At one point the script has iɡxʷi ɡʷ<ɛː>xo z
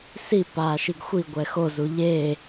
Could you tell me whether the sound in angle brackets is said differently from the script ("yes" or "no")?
yes